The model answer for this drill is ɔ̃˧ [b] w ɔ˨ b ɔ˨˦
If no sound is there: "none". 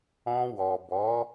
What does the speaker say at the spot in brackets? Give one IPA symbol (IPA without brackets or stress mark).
none